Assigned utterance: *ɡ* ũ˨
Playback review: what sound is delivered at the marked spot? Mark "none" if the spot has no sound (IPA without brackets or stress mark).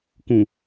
k